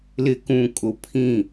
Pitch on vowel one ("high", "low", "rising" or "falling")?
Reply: low